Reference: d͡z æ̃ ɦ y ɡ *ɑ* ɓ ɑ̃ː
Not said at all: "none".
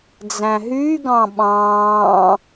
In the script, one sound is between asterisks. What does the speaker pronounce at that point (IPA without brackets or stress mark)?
ɑ̃